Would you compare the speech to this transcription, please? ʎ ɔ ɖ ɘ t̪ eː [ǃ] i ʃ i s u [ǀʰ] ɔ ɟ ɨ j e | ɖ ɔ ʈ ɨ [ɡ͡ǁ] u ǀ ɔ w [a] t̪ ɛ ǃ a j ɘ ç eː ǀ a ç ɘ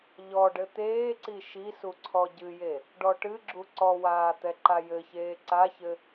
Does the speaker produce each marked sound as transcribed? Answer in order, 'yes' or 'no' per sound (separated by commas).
no, yes, yes, no